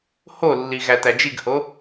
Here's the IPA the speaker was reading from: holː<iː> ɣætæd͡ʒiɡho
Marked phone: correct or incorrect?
incorrect: i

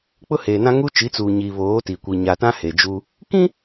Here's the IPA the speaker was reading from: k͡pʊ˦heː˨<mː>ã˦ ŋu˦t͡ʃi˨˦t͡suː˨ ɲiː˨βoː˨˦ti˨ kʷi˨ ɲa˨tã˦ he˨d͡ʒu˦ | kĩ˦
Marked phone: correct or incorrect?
incorrect: n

